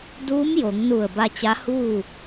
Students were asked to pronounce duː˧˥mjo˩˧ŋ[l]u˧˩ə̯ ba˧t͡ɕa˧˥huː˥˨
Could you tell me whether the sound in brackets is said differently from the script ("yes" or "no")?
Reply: yes